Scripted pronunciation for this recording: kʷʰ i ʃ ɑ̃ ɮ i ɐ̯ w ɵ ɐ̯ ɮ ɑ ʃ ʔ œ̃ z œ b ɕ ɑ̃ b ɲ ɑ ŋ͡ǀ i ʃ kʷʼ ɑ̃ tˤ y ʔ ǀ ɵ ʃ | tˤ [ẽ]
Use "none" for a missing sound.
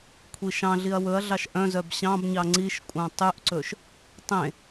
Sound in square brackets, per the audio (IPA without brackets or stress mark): ẽ